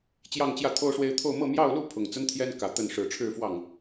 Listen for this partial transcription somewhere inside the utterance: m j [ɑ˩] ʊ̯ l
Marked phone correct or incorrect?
incorrect